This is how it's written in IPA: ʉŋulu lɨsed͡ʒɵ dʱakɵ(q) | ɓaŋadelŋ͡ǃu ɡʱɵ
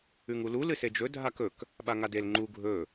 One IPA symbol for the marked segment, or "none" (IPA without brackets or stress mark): k